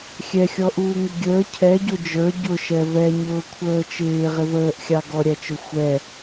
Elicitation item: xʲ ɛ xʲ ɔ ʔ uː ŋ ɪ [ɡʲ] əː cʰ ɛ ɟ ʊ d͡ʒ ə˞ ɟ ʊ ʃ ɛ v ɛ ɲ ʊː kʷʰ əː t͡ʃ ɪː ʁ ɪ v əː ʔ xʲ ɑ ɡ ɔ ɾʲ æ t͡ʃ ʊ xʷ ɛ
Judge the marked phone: correct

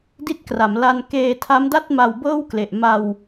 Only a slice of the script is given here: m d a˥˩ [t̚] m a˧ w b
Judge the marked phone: correct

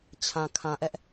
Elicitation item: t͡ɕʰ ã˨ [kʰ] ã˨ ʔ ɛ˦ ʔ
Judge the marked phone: correct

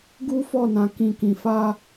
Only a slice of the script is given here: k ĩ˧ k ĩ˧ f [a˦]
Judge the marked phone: correct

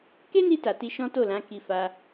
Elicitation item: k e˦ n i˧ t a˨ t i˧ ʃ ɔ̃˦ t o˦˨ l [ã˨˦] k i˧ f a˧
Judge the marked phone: correct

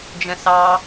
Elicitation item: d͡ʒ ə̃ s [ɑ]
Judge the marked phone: correct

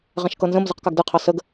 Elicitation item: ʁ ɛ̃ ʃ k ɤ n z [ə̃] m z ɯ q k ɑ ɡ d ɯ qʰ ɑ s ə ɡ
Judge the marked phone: correct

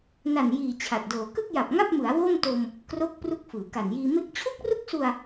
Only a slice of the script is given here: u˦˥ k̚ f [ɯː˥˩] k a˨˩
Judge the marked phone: incorrect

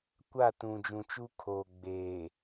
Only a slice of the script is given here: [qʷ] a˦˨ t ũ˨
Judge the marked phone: incorrect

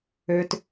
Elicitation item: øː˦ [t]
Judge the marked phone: correct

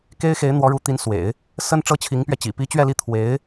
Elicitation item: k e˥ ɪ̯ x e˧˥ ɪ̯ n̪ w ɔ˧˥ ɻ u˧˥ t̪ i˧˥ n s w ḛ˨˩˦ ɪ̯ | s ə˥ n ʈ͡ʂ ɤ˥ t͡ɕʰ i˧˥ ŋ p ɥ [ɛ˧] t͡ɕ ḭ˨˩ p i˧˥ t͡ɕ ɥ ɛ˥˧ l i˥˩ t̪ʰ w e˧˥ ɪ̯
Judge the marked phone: correct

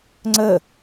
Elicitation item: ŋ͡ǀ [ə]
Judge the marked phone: correct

